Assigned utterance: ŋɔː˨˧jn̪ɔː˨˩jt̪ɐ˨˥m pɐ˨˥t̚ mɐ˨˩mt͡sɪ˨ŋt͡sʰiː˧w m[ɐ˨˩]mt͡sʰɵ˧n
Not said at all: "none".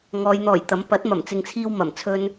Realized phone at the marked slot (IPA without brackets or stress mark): ɐ˨˩